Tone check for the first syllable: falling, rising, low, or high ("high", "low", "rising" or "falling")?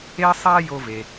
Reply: high